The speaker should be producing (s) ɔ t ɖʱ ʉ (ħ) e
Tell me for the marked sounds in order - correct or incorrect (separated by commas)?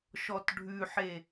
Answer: incorrect, correct